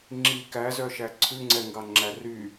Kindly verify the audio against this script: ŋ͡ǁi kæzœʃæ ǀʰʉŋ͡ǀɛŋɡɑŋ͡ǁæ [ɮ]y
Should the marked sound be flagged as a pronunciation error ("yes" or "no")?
yes